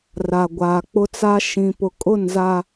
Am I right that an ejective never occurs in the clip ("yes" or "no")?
no